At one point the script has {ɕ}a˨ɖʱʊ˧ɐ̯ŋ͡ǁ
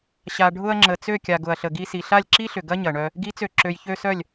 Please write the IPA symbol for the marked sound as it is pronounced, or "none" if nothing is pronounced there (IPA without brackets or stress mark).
ɕ